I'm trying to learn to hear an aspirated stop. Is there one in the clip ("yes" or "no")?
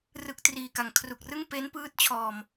yes